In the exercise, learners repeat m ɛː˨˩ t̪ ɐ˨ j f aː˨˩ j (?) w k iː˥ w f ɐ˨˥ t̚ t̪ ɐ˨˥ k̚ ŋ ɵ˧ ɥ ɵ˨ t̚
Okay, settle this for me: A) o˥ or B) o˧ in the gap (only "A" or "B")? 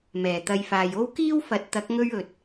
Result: A